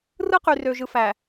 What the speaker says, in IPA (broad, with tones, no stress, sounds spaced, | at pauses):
r ɯ˦ q y˨ r ø˨ ʒ ɯ˨ f æ˨